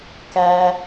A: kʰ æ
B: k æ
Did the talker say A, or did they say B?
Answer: B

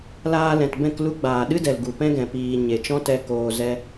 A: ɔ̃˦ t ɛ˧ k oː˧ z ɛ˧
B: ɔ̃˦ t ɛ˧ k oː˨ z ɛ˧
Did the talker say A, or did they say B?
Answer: B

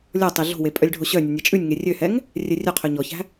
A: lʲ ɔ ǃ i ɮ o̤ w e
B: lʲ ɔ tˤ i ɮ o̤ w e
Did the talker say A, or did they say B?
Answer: B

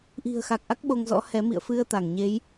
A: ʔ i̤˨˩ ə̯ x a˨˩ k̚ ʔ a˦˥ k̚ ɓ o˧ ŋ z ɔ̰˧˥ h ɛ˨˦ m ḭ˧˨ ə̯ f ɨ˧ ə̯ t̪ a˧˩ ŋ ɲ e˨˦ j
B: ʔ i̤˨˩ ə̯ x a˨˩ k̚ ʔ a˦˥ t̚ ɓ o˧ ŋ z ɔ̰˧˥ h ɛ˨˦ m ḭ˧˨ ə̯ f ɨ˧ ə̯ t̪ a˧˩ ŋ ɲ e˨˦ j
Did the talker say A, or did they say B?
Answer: A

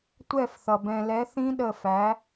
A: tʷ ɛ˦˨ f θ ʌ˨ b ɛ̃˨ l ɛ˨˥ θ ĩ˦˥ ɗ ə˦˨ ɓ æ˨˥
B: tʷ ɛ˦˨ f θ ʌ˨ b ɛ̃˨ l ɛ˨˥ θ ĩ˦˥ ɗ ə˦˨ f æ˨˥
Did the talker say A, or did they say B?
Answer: B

